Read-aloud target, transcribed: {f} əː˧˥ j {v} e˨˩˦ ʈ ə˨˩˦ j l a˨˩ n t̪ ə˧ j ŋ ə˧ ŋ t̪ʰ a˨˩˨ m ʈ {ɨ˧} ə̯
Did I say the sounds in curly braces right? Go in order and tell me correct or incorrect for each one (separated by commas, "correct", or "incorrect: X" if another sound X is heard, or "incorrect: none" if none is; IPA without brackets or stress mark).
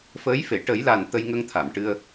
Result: correct, incorrect: f, correct